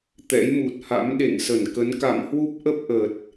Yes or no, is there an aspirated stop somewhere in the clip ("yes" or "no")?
no